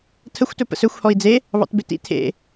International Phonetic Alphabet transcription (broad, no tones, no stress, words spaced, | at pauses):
tʰəxʷtɵ pə̰sɵxʷhɔi̯ d͡ze | βɑ̰tbetḭ tʰḛ